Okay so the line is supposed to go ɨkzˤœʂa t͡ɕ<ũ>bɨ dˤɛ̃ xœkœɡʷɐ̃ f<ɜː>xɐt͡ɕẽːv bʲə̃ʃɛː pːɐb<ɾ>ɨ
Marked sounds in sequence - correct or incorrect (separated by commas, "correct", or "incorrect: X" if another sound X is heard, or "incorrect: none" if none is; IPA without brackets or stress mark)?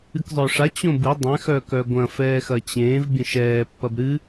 incorrect: õ, incorrect: ɛː, correct